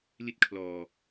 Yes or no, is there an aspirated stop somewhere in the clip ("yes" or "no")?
yes